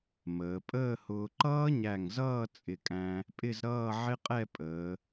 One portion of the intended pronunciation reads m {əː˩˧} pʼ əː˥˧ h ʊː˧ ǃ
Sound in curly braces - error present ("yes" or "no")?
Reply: no